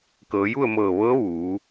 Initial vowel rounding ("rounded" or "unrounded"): unrounded